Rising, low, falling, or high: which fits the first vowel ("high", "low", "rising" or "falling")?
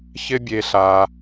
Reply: high